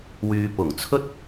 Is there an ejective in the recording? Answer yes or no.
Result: no